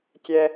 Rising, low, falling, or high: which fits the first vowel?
high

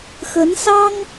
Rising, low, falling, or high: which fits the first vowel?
rising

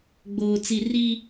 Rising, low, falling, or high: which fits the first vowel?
low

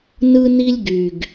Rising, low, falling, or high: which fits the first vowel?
high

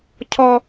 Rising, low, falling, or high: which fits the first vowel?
high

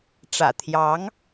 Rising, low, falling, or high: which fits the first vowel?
low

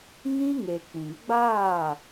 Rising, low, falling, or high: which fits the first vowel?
high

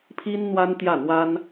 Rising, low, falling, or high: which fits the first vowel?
high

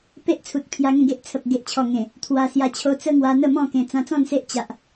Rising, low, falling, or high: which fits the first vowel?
high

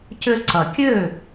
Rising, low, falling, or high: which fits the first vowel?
high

